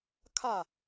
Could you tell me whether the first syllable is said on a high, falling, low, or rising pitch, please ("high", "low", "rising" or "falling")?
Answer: falling